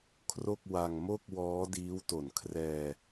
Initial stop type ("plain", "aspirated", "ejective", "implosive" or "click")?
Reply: aspirated